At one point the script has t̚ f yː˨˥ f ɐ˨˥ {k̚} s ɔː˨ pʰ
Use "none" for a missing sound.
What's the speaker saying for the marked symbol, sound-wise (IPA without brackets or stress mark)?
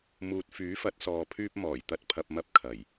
t̚